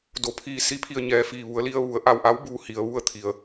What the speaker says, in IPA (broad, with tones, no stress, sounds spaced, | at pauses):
d o˩ pʰ iː˧˩ s i˧ pʰ i˧˩ ə̯ ɲ ɛː˧˩ f iː˧˩ ʋ u˩˧ ə̯ l i˧ ə̯ ʋ u˩˧ ə̯ ʔ a˧˩ w ʔ a˧˥ w b uː˧ h i˩ ə̯ ʋ u˥˨ ə̯ t̪ʰ i˩ ə̯